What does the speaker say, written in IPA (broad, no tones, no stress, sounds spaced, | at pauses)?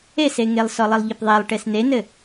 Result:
e s e ŋ e lˠ s ɔ lˠ ɘ lˠ ʎ e p ðˤ e lˠ ʈ e s n e n ɘ